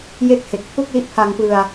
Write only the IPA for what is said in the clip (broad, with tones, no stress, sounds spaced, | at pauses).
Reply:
j e˥˩ k̚ h e˨˩ k̚ pʰ u˥˩ k̚ l i˦˥ ʔ pʰ a˧ ŋ p ɯ˧ a̯